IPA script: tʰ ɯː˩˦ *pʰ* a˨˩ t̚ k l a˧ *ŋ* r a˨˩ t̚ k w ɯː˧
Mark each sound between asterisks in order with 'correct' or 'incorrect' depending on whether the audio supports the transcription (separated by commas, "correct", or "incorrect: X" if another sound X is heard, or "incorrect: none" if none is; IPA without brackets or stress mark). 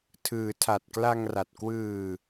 incorrect: tʰ, correct